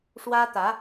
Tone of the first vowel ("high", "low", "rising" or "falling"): high